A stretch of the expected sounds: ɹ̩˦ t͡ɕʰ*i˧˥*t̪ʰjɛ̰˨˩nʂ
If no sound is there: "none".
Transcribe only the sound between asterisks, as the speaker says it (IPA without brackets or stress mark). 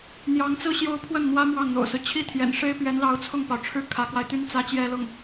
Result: i˥